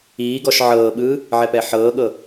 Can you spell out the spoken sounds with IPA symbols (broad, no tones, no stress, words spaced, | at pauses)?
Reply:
iːɡɔʃ ʕɤːɓɯː | ʕɛpɛħɤːɠɤ